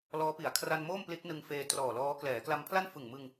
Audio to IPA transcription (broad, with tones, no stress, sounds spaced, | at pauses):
l ɔː˦˥ p i˩˦ a̯ kʰ r a˧ n m oː˥˩ m p l i˦˥ t̚ n ɯ˧ ŋ f eː˧ t r ɔː˨˩ l ɔː˦˥ k l ɛː˩˦ k l a˧ m pʰ l a˥˩ n f ɯ˨˩ ŋ m ɯ˧ ŋ